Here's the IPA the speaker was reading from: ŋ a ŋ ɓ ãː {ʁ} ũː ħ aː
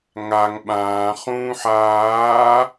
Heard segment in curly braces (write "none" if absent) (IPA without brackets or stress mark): χ